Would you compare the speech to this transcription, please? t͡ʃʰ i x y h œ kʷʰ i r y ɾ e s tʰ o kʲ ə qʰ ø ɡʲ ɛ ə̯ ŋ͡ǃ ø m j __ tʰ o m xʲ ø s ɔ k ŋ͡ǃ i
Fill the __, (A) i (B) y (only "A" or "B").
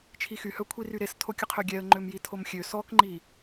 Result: A